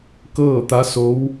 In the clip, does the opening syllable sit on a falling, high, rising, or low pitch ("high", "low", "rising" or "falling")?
falling